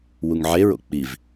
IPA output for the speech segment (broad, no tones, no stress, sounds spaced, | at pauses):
w u ŋ ʕ e ɹ o̰ k͡p i v